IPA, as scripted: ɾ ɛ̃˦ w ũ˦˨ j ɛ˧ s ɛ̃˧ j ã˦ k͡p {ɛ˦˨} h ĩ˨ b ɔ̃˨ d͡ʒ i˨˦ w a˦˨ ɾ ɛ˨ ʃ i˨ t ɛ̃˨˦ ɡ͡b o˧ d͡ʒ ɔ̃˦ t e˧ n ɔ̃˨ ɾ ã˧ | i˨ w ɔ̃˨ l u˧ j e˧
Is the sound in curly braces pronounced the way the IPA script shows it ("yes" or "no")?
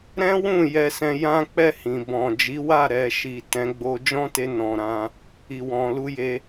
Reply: yes